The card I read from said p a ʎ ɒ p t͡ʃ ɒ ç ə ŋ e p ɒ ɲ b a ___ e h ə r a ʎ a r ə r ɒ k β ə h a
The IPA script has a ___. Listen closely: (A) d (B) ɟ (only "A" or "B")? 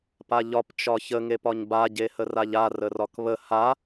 B